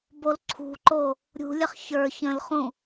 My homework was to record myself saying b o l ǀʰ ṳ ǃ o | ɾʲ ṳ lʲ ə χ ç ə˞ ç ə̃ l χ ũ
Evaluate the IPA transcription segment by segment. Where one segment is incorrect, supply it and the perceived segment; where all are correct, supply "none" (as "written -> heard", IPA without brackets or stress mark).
none